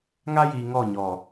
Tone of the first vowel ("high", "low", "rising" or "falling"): high